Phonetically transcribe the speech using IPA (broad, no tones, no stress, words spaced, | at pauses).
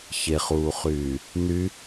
çeχuːχyː | ny